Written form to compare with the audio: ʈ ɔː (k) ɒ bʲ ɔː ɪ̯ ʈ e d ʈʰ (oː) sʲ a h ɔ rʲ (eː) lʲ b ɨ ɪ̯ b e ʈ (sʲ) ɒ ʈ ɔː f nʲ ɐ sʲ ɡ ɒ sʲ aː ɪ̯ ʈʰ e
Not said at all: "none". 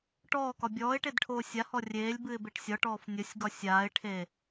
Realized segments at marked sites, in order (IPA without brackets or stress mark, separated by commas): k, oː, eː, sʲ